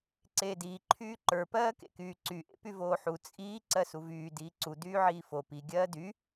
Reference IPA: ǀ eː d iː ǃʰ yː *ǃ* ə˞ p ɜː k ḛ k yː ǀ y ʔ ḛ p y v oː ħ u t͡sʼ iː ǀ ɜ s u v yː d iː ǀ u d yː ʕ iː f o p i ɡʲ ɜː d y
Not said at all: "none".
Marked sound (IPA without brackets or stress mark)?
ǃ